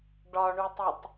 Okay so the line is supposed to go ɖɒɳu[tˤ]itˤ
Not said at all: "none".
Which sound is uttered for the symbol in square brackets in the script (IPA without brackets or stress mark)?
tˤ